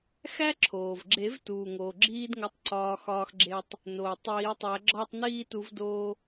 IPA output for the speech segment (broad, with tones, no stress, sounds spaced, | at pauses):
x æ˥ ǁʰ oː˩ v ɡ͡ǁ e˨˩˦ v t uː˩ ŋ oː˩ ɡ͡ǁ iː˥ d ŋ o˧ tˤ ǀ ɒː˧ x ɒː˧ x ɡ͡ǁ e˧ tˤ | n oː˩ tˤ iː˨˩˦ tˤ æ˨˩˦ ɡ͡ǁ ɒː˥˧ tˤ n iː˥˧ t u˨˩˦ v d oː˧